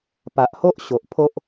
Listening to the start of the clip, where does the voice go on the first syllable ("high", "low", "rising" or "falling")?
low